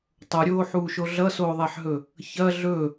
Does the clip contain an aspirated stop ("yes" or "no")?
no